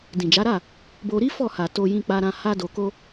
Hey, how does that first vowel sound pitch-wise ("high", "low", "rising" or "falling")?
low